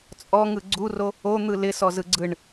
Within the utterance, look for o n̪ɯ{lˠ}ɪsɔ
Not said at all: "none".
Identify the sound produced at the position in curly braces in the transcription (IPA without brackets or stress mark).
l